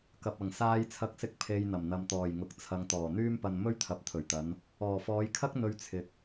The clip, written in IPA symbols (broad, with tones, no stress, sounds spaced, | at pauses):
k ɐ˨ p̚ ɐ˨˩ ŋ s aː˧ j t͡sʰ ɐ˧ k̚ s ɪ˧ k̚ pʰ e˨ j n̪ ɐ˨˩ m n̪ ɐ˨ m t̪ ɔː˨˩ j ŋ ʊ˨ k̚ t͡sʰ ɐ˨ ŋ t̪ ɔː˨˩ n̪ yː˥ m p ɐ˧ n m ɵ˥ ɥ t̪ʰ ɐ˨˥ p̚ t̪ʰ ɵ˨˩ ɥ t̪ ɐ˨˧ n | ɔː˨˩ f ɔː˨˧ j kʰ ɐ˥ k̚ n̪ ɵ˧ ɥ t͡sʰ ɪ˨ k̚